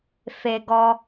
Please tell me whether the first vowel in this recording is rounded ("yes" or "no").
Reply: no